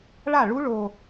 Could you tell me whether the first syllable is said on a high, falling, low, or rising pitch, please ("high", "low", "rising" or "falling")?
falling